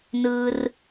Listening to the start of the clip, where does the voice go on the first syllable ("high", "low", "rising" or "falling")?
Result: low